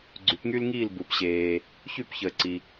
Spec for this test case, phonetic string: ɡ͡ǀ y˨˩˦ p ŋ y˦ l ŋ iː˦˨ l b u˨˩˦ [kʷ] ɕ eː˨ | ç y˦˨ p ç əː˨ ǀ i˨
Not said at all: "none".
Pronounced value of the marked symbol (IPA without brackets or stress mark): p